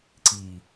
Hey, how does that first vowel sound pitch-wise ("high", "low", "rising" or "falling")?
low